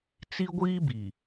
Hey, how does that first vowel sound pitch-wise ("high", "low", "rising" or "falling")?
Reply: high